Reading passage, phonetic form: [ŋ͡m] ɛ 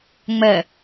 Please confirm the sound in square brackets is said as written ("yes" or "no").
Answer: yes